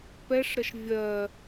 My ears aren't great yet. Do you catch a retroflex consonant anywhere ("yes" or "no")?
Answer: yes